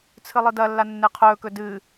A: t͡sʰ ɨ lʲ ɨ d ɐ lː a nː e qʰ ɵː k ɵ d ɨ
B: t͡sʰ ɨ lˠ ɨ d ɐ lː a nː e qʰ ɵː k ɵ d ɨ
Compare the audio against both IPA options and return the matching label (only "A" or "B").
B